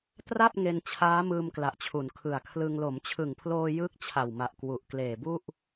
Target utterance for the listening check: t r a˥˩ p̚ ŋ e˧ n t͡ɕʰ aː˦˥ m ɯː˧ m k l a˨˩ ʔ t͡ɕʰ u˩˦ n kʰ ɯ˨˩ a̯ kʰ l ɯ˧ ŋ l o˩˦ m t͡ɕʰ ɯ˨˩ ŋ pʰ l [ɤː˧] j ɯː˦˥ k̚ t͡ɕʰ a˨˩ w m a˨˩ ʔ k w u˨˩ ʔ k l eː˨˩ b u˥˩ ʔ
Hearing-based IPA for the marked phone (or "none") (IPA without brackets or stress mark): oː˧